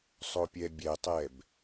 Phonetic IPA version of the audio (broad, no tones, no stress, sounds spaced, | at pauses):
sˤ o pʲ ɛ bʲ ɛ tˤ ɛ b